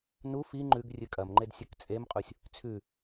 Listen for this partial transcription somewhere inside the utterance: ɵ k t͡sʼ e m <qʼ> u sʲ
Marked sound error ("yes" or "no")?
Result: no